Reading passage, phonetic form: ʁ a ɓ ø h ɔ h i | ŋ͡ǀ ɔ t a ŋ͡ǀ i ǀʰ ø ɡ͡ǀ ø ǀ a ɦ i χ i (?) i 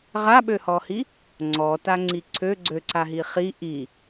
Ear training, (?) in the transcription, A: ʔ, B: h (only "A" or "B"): A